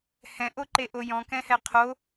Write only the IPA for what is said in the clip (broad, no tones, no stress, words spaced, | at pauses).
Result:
hɛ̃ʔoǃeʔo jɔ̃kɛ̃hɛ qʰo